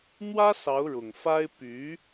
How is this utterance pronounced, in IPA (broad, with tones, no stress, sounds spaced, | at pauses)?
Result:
n̪ w ä˥ s ɑ˧˥ ʊ̯ ɻ ʊ˨˩ ŋ f a˥ ɪ̯ p y˧˥